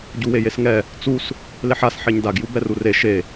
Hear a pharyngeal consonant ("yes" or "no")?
yes